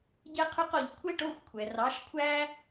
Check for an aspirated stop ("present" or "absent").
present